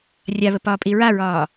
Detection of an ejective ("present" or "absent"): present